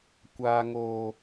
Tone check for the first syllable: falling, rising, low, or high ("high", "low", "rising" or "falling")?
low